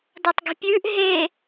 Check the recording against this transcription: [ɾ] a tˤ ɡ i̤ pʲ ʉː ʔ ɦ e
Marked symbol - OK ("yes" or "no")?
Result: no